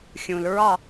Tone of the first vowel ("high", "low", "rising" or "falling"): low